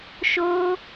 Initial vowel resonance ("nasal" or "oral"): oral